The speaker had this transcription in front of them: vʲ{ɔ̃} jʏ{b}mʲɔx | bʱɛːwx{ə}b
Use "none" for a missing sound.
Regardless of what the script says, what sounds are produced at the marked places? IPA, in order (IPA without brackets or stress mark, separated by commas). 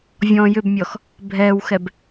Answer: ɔ̃, b, ɛ